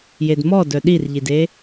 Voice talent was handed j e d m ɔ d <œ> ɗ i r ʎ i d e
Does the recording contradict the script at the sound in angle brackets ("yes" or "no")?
no